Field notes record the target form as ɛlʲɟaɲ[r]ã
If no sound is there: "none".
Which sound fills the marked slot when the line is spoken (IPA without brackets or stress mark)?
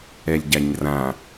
r